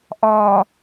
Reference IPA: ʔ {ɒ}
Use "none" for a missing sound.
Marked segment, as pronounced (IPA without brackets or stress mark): ɒ